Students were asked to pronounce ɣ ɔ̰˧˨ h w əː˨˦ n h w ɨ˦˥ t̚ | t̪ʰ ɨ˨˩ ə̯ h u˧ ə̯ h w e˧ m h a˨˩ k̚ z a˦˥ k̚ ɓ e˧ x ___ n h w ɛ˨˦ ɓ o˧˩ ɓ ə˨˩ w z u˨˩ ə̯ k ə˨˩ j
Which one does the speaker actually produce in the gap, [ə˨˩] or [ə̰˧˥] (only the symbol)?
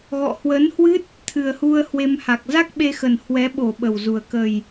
ə˨˩